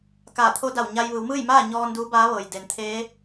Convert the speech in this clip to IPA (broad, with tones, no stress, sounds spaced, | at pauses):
k aː˧˩ t̪ʰ o˧˥ d a˧˩ w ɲ a˧ j ʋ ɯː˩˧ w m ɯː˥˨ j m aː˥˨ ɲ ɔː˧ n d uː˧˥ b aː˧˥ ʋ ɤː˩ j d e˩ n t̪ʰ eː˧˥